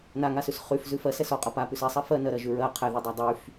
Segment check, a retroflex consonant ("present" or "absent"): absent